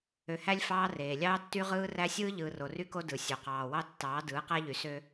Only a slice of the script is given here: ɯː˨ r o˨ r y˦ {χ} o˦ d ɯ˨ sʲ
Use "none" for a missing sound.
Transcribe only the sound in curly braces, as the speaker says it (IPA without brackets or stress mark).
k